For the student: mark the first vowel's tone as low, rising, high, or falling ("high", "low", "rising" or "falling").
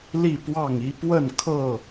falling